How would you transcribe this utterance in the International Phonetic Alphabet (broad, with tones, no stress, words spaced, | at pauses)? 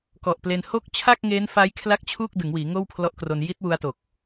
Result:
kɔ˨˩ʔple˧n ho˥˩k̚ t͡ɕʰa˥˩k̚ŋeː˦˥nfa˦˥j kʰla˥˩k̚t͡ɕʰu˥˩k̚ dɯ˩˦ŋwiː˩˦ ŋoː˥˩wpʰlɔ˦˥ʔkro˧n ji˦˥t̚wu˧a̯ to˨˩k̚